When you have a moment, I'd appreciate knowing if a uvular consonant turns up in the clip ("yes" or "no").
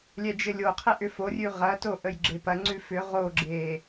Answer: yes